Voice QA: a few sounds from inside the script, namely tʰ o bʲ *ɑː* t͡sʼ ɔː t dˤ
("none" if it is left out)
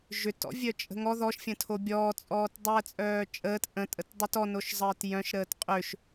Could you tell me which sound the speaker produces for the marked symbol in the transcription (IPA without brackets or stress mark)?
ɔː